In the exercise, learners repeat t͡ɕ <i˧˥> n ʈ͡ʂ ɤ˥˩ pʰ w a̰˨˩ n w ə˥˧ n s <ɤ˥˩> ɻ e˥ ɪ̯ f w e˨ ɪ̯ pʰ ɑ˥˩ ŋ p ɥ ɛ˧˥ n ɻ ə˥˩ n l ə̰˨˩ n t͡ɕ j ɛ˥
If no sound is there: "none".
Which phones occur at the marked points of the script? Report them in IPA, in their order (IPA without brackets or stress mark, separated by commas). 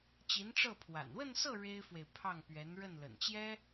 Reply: i˧˥, ɤ˥˩